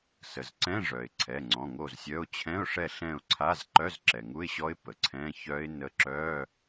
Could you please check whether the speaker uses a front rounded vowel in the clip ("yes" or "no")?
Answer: yes